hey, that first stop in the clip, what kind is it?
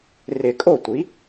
ejective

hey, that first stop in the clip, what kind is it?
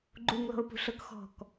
click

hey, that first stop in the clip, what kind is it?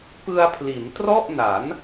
plain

